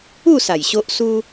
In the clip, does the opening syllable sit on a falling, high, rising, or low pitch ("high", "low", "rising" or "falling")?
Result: falling